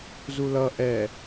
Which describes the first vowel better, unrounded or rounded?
rounded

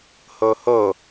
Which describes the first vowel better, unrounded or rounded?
rounded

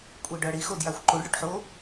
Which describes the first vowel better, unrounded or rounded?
unrounded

